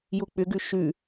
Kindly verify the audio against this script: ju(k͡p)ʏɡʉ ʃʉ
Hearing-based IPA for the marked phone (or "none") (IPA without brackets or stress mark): k͡p